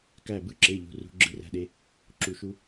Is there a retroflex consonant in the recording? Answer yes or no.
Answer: no